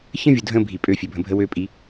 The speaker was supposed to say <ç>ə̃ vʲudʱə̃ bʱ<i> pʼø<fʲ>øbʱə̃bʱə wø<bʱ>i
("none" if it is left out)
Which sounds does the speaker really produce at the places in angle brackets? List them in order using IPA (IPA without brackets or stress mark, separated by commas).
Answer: ç, i, fʲ, pʼ